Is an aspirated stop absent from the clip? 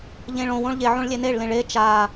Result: yes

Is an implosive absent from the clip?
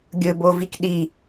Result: no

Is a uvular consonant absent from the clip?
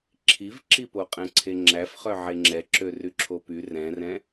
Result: no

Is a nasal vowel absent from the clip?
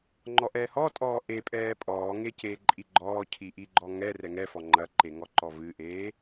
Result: yes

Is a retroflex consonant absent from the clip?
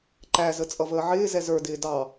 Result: yes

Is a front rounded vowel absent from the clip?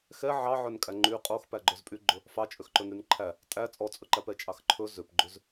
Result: no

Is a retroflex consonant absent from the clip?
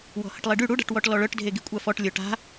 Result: no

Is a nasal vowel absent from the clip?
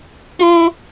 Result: no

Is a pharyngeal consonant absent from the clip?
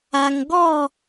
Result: yes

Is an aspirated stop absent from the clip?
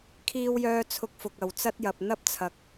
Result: no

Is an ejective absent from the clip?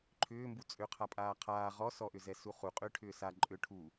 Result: no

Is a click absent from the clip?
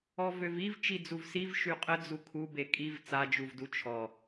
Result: yes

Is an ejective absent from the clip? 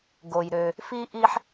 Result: yes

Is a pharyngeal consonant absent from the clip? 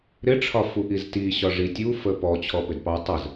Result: yes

